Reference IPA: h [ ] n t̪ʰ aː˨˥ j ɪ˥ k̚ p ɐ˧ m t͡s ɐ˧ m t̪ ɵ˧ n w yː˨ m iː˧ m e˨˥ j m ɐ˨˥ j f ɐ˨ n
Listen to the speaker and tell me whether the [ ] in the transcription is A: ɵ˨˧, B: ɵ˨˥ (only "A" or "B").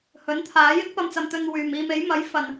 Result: B